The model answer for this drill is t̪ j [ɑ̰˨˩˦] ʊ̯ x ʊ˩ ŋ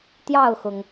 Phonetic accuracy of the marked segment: incorrect: ɑ˥˩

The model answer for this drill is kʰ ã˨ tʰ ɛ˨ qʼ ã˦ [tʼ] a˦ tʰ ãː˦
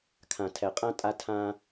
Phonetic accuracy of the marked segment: correct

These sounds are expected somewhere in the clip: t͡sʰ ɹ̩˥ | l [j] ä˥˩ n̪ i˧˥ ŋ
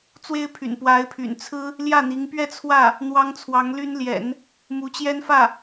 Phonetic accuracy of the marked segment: correct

